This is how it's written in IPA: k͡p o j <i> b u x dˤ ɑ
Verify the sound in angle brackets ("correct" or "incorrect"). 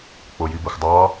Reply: correct